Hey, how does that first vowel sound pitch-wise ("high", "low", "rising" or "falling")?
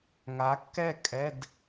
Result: rising